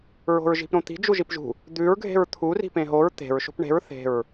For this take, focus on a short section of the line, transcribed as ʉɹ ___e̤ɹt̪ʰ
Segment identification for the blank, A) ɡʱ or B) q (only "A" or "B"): A